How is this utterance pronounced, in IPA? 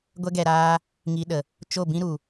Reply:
ɡʷ ɛ˦ ɡ ɛ˧ ɾ aː˦ | ŋ i˦ ɗ ə˧ | t͡ʃ o˦˨ b ĩ˦ ɾ u˧

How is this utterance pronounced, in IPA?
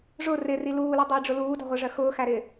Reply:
ʐ ʊ r ɪ r i l uː l ʌ dˤ ʊ j ɖ͡ʐ ʊ l uː d ɑ̤ ʁʷ ɜ ʐ ɜ x ʊː x æ ɾ ɪː

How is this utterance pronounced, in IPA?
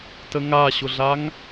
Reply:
t ə ŋ a ɕ ʊ ɮ a ŋ

